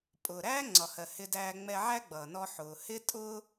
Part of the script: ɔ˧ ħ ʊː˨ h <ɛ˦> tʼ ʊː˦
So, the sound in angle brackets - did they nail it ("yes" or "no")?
no